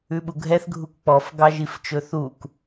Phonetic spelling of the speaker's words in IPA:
ʉ ɓ u ɡʱ ɛ θ ɡʱ u k k͡p ɔ f ɡ ɑ ʒ i f t͡ʃ ɵ θ u k

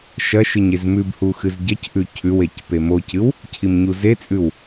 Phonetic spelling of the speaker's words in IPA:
ʃ ɐ ʃ ɨ ɲ e z m ʉ b h u x ɨ z ɟ ɐ c ʔ ʉ cʰ ʉ w e c p e m o c ɨ w | cʰ i m ɲ u z e t͡sʼ ʉ w

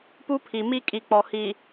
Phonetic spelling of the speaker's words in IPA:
p u˦ pʰ i˨ m i˦ kʼ i˨ k͡p ɔ˨ h i˨

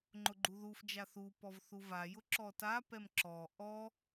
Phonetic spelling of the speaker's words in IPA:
ŋ͡ǃ ʊ ɡ͡ǃ u ð u f d͡ʒ a θ u p ɔ v θ u v a j ʊ ǁ ɔ t a p ɛ m ǁ ɔ ʔ ɔ

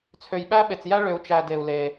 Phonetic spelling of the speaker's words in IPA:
t͡sʰ ø˨ j ɓ æ˦ ɓ e˨ t͡s j æ˦ ɭ ø˨ u̯ t͡ʃ æ˨ d e˨ u̯ l e˨

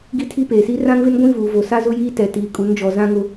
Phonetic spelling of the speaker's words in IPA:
ɡ i˦ tʰ i˦ p eː˨ s i˦ r ã˦ ŋ v ɪ˦ n ɡʷ ĩ˦ v uː˨ v o˨ s a˦ z ʊ˦ j iː˦ t ɛ˨ t iː˨ kʼ u˨˦ n d͡ʒ ɔ˨ z ã˦ ŋ ʊ˦

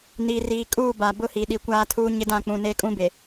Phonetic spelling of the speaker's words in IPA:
n iː˨ r iː˨ kʼ uː˦˨ b a˨ b ʊ˦ h i˨ ɗ i˨ kʷ aː˦ tʰ uː˦ ɲ ɪ˦ d ã˦˨ k͡p ũ˨ n eː˦ kʼ ũ˦ b e˨

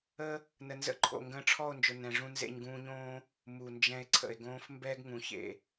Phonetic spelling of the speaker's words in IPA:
ə˦ | n ə˨ n z ə̰˧ ǃʰ o̰˨ ŋ ɡ ə̃ː˧ ʈ͡ʂʰ ɔ˦˨ o̯ n d͡ʒ ʊ˨ n ɛ̃˧ ʐ ũ˧ n z ḛ˧ ɲ ɡ ũː˧ ɲ õː˦ | m u˨ n d͡ʒ ɛ̃˧ e̯ ǀʰ ə̰˨ e̯ ɡ õː˧ f m b ɛː˦ ɡ ŋ ũ˨ ç ḛ˨

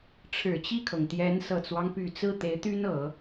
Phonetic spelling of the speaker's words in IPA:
ʈ͡ʂʰ ɻ̩˨˩ t͡ɕ i˥˩ kʰ ɤ˩ ŋ t̪ j ɛ˧˥ n s ɤ˨˩ t͡s w ɑ˦ ŋ p y˨˩ t͡s ɹ̩˥˩ t̪ e˧˥ ɪ̯ t̪ y˥ n ɤ˨˩˦

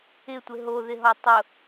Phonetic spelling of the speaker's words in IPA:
ɪ tʷ ɪ ɦ o ð ɪ ɦ ɔ tˤ ʊ

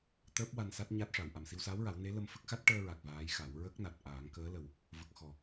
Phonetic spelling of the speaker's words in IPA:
t̪ əː˦˥ p̚ w a˧ n s a˦˥ t̚ ɲ a˦˥ t̚ ʂ a˨˩˨ w ʔ a˨˩ m s i˧ w s aː˧˥ w ɹ a˨˩˦ w n e˧˥ l ə˧ m f ə˦˥ k̚ x a˦˥ t̚ ʈ əː˧ ɹ a˨˩ k̚ v aː˧˥ j x a˨˩˦ w ɹ ə˦˥ k̚ n a˨˩ t̚ ʔ aː˨˩˦ ŋ k əː˧˥ l ə˨˩ w | v ə˨˩ k̚ x ɔ˨˩

